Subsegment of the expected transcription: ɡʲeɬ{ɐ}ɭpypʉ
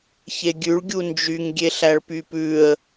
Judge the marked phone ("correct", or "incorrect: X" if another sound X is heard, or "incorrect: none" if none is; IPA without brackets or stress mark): incorrect: æ